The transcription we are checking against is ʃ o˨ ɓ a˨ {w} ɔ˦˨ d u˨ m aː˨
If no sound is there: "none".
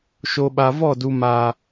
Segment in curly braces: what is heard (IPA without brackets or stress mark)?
v